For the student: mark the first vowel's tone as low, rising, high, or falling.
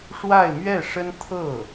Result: falling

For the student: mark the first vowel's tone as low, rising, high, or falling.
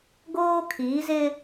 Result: high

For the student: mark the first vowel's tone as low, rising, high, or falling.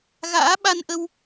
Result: rising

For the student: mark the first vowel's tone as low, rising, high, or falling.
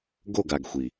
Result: falling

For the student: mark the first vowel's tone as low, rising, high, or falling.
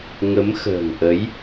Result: rising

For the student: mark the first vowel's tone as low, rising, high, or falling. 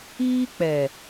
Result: high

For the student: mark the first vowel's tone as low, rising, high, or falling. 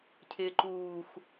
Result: low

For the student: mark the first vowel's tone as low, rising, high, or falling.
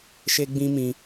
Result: high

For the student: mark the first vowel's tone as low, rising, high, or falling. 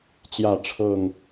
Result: falling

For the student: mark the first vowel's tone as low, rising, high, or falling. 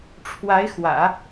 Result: rising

